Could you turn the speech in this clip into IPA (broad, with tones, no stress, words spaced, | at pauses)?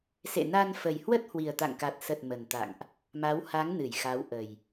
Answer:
sḛ˧˨na˧nfə˨˩j hwə˦˥t̚ hwi˨˩ə̯t̪a̰˧˨ŋka˨˩t̚ sə˨˩t̚ mə˨˩nt̪a̰˧˨ŋʔ | ma˨˦wha˨˦ŋ nɨ˧˩jxa˨˦wʔə˨˩j